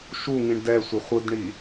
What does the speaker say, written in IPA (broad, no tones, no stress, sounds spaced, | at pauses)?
ʃ u ŋ ĩ ɳ d ɛ sʷ ɘ χʷ ɯ d ɳ i